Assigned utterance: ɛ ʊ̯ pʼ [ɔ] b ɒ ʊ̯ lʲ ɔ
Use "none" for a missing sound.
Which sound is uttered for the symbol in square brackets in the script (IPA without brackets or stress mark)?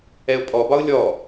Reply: ɔ